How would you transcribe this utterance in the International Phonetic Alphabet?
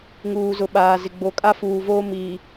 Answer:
ŋuː˨zʊ˨ ɓaː˨zɪ˨ ɡ͡bo˨kʼa˦fuː˨voː˦ miː˨

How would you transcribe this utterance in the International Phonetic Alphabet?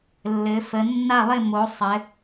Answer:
lːɘ˩˧fə˩˧nːa˥˨lˠɪ˥˨ mo˩˧ sˤɘ˩˧

